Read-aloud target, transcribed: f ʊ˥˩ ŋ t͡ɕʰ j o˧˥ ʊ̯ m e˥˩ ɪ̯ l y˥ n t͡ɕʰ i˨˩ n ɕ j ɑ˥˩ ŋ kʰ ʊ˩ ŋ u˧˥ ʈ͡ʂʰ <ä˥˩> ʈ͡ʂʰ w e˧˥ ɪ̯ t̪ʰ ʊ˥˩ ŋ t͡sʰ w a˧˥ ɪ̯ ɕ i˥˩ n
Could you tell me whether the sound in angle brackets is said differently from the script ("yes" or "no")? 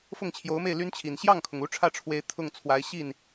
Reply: no